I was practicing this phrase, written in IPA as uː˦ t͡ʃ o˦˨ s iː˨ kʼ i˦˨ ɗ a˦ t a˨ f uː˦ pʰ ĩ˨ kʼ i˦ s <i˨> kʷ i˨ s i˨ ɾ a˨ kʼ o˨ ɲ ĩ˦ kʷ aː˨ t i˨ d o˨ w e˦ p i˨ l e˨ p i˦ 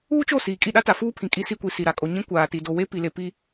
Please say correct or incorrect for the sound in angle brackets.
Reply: incorrect: i˦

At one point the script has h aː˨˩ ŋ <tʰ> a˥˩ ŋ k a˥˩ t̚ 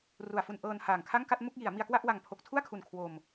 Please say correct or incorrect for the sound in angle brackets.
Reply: incorrect: kʰ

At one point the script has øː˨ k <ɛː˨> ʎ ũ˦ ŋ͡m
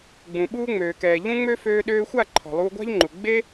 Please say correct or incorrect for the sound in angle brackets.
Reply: correct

